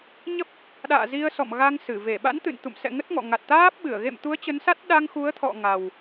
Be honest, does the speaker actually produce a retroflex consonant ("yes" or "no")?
no